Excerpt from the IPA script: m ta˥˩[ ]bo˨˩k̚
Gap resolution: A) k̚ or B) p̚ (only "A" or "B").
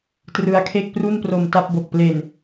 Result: B